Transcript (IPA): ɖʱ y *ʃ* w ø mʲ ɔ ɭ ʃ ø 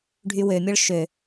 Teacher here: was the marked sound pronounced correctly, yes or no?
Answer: no